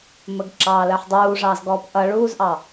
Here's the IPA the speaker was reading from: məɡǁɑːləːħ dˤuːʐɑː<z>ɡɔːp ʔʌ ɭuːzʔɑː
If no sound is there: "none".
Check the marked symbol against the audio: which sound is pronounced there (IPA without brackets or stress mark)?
z